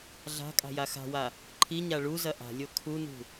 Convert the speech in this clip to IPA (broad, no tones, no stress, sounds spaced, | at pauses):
ɮ a̤ kʼ a̤ j a x a̤ w a | ǃʰ i ɲ a ɭ u z ɐ ʔ a̤ lʲ o kʰ u n ṳ